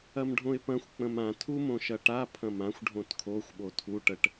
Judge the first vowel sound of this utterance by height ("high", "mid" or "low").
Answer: low